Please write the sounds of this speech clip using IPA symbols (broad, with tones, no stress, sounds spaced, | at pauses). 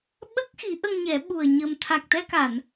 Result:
ɓ ə˦˥ k̚ x i˨˩˦ ʔ ə˧ ŋ ɲ ɛ˨˩˦ ɓ u˨˩ ə̯ ɲ ə˨˩ m t̪ʰ a˨˩ k̚ t̪ ɛ˧ k a˨˩˨ n